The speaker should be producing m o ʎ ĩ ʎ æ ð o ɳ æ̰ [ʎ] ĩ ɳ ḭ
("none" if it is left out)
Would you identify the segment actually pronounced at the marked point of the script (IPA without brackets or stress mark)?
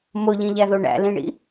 l